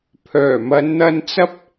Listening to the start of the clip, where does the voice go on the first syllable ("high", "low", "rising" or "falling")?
low